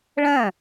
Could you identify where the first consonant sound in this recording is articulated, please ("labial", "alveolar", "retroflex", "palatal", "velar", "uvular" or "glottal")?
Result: retroflex